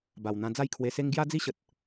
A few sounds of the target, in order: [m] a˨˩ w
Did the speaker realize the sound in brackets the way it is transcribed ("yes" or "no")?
no